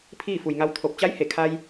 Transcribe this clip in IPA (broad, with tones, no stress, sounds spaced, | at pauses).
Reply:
pʰ iː˥˨ f u˩ j ŋ a˧ w t̪ʰ o˧˩ p̚ t͡ɕ a˧˥ j h e˧˩ kʰ aː˧ j